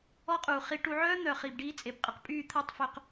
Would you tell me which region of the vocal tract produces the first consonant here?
uvula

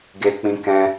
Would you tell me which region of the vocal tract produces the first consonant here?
velum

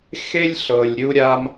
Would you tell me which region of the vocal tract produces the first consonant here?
velum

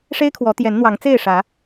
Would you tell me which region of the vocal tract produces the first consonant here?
retroflex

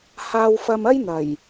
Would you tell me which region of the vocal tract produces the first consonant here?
throat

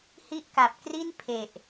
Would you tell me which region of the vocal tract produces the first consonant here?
throat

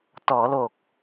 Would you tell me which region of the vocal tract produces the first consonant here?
tongue tip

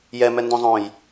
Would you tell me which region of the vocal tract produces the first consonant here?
palate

